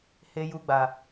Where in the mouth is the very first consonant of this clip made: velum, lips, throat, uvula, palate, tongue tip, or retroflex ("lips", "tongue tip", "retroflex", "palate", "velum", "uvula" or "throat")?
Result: throat